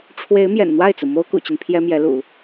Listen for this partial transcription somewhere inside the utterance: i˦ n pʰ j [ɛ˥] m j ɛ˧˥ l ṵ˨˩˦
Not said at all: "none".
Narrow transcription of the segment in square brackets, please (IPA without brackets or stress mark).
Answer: ɛ˥